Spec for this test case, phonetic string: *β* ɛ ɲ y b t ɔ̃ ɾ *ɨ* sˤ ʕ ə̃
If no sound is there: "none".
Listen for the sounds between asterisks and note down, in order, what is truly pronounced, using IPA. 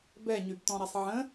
b, ɛ

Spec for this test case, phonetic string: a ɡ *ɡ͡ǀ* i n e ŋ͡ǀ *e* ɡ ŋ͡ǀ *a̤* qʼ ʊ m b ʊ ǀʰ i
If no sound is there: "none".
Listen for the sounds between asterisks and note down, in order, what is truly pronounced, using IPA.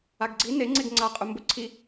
ɡ͡ǀ, e, a

